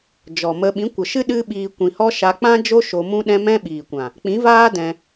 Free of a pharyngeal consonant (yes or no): yes